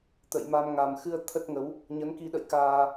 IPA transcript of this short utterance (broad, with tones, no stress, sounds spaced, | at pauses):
t̪ ə̰˧˨ j m a˧ m ŋ a˨˩ m x ɨ˧ ə̯ t̪ʰ ə˦˥ t̚ ŋ ə˨˦ w | ɲ ə˨˦ n k i˧ ɗ ə̰˧˨ j k aː˧